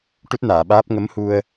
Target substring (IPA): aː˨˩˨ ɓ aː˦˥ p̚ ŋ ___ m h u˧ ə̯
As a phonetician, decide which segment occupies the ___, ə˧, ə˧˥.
ə˧˥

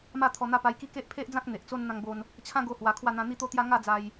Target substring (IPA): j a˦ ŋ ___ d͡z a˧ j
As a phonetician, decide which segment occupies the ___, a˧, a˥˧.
a˥˧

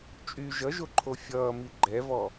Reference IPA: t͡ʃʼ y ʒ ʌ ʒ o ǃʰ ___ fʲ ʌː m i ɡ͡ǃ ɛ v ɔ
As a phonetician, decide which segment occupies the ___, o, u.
o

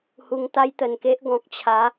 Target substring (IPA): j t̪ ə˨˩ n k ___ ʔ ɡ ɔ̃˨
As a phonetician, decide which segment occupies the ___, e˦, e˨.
e˦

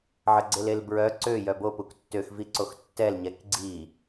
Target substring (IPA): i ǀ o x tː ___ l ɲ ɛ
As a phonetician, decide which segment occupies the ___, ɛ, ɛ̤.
ɛ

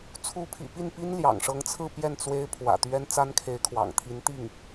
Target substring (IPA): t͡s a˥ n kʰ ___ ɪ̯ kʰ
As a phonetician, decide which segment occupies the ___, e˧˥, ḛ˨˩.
e˧˥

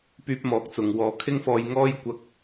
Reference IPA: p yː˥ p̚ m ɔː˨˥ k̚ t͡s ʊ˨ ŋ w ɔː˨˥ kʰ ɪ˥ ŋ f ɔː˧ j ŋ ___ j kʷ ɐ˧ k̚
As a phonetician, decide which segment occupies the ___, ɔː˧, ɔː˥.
ɔː˥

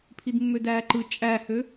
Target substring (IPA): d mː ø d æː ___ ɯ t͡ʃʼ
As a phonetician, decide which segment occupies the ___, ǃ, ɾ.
ǃ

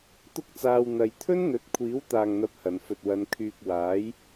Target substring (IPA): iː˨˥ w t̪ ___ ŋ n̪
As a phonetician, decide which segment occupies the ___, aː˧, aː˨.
aː˨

